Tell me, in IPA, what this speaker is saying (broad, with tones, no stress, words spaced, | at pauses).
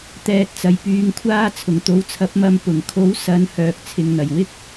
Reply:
t̪ɛː˨t̚t͡sɐ˨˩jpyː˨ŋkʷʰaː˧ t͡sʰʊ˨˩ŋt̪o˨˥wt͡sʰɐ˨˥p̚mɐ˧m pʊ˨˩ŋkʰo˨˥w sɐ˨˧n hœː˨k̚t͡sʰɪ˨ŋn̪ɐ˨˩j wɪ˨˥k̚